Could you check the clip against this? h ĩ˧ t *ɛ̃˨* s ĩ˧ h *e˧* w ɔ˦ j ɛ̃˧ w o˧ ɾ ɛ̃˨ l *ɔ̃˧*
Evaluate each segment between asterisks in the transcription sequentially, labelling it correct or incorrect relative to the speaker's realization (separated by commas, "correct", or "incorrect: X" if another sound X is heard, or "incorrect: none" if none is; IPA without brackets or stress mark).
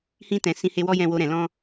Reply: correct, correct, correct